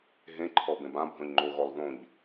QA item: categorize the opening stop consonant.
click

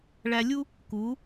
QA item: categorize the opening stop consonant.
plain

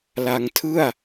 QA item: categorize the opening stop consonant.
aspirated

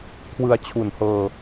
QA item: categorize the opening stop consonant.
aspirated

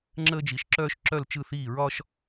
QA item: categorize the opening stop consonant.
click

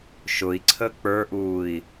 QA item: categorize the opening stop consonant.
click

